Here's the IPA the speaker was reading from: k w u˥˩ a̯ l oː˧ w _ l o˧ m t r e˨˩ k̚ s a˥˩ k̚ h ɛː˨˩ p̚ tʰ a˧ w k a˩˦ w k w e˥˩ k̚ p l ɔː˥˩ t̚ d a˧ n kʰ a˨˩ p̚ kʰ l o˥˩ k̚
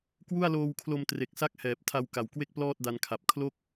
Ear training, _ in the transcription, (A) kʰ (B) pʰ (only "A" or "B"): A